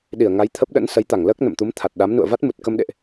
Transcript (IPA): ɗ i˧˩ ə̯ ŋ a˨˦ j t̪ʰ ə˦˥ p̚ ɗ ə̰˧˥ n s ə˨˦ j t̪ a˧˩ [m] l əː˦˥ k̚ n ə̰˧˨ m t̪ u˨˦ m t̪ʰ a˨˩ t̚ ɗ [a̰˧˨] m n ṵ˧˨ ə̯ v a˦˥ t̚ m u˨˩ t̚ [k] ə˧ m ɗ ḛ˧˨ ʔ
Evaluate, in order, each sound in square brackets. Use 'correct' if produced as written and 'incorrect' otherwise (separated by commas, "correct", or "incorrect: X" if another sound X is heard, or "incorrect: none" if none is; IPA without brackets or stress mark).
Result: incorrect: ŋ, incorrect: a˨˦, correct